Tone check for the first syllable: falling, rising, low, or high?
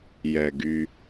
low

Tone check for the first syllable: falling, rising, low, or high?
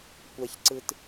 low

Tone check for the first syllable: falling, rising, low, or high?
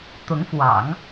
rising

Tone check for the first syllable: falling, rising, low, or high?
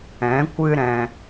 rising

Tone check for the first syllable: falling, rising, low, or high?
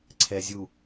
low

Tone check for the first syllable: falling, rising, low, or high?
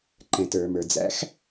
low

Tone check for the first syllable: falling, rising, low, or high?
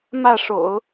falling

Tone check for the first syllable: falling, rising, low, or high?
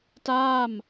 falling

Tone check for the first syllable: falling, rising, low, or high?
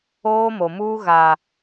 high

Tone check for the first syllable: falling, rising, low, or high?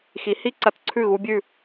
rising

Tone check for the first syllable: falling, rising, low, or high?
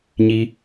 high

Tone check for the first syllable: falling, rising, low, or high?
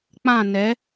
falling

